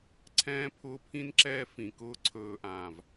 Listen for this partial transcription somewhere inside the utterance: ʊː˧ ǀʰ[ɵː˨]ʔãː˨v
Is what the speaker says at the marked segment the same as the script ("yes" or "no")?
yes